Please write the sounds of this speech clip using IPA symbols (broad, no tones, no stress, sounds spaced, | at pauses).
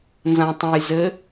n z ã tˤ ə̃ j z ɘ